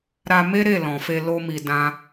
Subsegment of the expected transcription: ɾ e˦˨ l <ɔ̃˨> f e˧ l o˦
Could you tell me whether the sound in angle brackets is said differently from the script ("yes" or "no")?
no